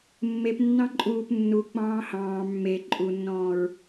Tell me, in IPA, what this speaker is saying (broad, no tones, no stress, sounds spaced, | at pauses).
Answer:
mː e p nː ɑ̃ ǃʼ uː p nː u k͡p ɑ̃ː h ɑ̃ː mː e ǃʼ u nː ɔ̃ː ɹ